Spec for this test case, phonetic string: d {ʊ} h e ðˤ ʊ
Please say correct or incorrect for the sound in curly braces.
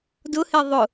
correct